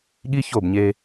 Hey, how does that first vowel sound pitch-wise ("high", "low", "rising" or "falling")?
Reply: high